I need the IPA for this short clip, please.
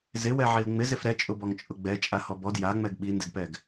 z ɪ w ɛ ʕ i l ŋ͡m ɪ z ɪ f ɾ ɛ t͡ʃʼ ʊ b ɔ ŋ t͡ʃʼ ʊ ɡ͡b ɛ t͡ʃʼ a h ɔ b ɔ d j a ŋ͡m ɛ ɡ ɓ i n d ɪ d p ɛ ɡ

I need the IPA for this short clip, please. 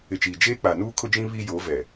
ɪ˨ t͡ʃ iː˨ d͡ʒ eː˦ k͡p a˨ n uː˦ kʰ ʊ˦ d͡ʒ ĩ˦ β i˦ j o˨˦ v ɛ˨

